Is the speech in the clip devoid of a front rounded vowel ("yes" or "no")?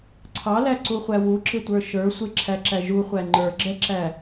yes